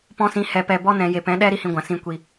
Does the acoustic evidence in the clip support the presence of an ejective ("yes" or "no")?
no